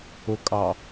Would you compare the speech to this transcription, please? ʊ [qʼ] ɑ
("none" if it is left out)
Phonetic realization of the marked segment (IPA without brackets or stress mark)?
kʼ